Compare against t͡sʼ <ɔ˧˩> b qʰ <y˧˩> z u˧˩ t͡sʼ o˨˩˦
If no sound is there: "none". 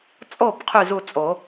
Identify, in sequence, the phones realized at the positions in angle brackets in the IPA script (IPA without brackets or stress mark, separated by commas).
o˧˩, y˧˩